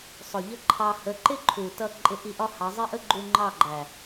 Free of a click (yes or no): no